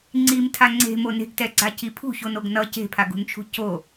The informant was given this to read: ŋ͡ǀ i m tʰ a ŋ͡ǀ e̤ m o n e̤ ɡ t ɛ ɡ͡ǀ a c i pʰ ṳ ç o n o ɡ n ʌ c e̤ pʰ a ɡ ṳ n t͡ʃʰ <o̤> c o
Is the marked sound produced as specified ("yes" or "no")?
no